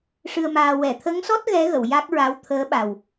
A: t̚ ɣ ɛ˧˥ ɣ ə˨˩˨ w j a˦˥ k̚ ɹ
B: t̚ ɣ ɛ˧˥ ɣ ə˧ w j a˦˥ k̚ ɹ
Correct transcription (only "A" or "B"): A